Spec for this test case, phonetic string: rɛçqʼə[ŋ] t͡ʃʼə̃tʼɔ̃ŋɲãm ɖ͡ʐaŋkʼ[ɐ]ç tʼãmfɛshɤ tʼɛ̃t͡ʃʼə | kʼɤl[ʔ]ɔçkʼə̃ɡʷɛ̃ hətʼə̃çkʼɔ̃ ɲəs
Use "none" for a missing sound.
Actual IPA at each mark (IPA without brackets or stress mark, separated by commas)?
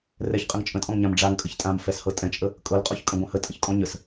ŋ, ə, qʼ